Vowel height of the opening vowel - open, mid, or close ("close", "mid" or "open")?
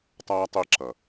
open